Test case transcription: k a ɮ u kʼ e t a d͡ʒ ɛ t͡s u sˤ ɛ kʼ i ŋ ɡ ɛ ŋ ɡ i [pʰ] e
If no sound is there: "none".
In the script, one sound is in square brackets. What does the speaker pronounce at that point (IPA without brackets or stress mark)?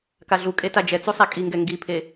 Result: pʰ